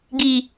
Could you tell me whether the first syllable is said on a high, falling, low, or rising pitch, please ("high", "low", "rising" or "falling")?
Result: low